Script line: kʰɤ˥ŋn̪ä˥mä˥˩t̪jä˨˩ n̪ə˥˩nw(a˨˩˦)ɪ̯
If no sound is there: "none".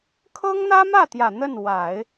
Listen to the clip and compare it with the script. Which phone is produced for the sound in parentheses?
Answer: a˨˩˦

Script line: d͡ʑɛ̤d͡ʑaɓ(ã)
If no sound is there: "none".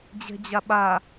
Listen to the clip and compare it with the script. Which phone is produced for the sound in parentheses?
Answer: a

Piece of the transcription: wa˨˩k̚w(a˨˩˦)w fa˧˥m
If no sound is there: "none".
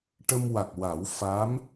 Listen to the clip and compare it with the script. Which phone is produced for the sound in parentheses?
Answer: a˨˩˦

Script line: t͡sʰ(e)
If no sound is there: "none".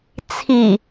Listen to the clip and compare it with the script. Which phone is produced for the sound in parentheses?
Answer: i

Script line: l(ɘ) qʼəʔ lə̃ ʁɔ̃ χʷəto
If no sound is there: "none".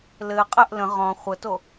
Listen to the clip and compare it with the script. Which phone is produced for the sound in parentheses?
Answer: ɘ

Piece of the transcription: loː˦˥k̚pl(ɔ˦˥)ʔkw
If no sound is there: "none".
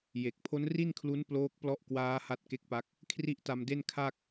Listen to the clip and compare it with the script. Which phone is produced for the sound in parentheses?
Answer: ɔ˦˥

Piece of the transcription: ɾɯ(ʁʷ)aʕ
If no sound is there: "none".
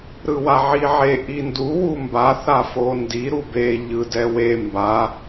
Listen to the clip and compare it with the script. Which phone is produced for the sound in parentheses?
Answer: w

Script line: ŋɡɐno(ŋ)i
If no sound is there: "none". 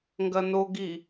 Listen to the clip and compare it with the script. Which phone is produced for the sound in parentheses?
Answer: ɡ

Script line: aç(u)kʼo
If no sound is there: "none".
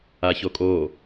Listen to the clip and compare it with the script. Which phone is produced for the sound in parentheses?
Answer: o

